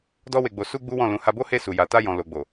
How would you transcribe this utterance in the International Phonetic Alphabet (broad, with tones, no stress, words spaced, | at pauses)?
dɔ˦we˧ɡ͡bo˧ su˦ɡ͡bu˦wɔ̃˦˨ lũ˨˦ha˧bo˦he˦˨ su˨ja˨ta˧jɔ̃˨ lo˨ɡ͡bo˨